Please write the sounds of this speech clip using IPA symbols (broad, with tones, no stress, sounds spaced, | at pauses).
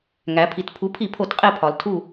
ŋ æ˩˧ pʰ i˩˧ t pʰ u˩˥ pʰ i˧˩˧ pʰ o˧˩˧ t qʼ e˦˨ pʰ ɒ˩˧ l tʰ u˦˨